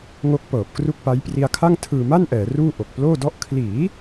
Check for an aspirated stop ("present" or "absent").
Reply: present